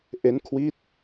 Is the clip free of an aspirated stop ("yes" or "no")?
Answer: no